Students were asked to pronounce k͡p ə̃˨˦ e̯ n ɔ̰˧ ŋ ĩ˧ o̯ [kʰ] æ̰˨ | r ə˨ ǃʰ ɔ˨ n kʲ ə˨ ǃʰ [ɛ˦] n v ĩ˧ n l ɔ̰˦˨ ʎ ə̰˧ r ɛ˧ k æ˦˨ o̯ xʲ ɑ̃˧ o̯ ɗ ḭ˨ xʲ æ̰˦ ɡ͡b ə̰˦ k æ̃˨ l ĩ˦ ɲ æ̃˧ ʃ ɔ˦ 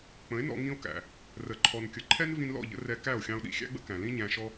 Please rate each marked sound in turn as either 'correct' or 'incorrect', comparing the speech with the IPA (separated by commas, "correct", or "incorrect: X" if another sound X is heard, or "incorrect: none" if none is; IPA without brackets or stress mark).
incorrect: k, correct